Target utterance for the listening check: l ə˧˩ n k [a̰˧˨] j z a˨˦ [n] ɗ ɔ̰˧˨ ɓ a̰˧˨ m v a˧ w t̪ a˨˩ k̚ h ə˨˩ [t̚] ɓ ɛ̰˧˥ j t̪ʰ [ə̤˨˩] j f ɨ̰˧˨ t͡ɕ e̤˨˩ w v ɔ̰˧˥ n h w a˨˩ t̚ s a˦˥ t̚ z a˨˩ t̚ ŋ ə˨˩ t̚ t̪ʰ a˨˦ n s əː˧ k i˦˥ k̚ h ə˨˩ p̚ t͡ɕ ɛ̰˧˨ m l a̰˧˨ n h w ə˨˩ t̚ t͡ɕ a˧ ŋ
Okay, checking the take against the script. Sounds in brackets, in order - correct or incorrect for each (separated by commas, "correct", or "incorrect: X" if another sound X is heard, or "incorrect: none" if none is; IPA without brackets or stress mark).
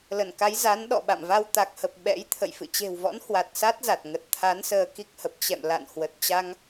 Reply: incorrect: a˨˦, correct, incorrect: p̚, incorrect: ə̰˧˨